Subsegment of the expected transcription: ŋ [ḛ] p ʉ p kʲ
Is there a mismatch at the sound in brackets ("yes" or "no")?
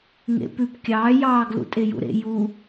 no